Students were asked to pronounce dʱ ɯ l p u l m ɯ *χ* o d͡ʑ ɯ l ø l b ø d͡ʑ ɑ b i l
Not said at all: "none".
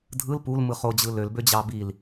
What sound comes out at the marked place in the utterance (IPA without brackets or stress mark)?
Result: χ